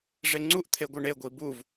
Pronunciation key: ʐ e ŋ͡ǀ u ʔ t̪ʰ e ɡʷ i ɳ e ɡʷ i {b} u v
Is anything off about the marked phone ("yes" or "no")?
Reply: no